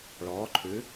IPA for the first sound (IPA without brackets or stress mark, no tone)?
ɭ